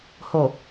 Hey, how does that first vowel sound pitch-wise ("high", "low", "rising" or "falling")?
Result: low